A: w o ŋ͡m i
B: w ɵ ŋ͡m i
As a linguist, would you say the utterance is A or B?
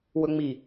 B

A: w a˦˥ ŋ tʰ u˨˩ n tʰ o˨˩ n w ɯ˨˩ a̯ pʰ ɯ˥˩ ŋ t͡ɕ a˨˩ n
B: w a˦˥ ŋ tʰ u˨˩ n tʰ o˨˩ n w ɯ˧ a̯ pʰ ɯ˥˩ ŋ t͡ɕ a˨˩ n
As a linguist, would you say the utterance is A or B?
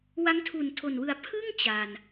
A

